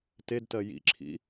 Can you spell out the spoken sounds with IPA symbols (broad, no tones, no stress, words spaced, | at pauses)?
tedtɜ jḭǁʰḭ